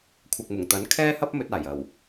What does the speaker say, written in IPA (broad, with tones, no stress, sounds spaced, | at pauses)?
kʷʰ ɐ˨ k̚ m ʊ˨˩ ŋ t̪ ɐ˨˥ n kʰ ɛː˥ h ɐ˥ p̚ m ɵ˧ t̚ aː˨˩ j ɐ˨˩ w